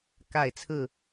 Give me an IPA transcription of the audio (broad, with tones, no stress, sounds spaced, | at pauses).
k a˥˨ ɪ̯ t͡sʰ ɹ̩˥˨